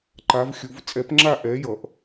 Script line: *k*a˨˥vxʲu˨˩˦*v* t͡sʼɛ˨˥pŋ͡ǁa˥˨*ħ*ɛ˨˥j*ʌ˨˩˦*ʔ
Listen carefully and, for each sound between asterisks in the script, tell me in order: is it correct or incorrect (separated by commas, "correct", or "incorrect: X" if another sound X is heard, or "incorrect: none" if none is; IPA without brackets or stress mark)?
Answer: incorrect: ǃ, correct, incorrect: ʔ, correct